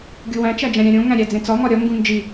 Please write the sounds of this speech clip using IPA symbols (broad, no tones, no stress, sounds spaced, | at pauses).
ɡʲ u w æ̃ t͡ʃ æ d͡ʒ æ̃ ɾʲ æ̃ ɾʲ õ ŋ æ̃ ɾʲ æ d͡z ẽ t͡s ɒ ŋ ɒ ɾʲ ɒ ŋ ɡ ũ n d͡ʒ i